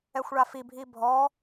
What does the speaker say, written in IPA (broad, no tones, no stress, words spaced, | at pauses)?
ɛxʷɭafibʱi bʱɔ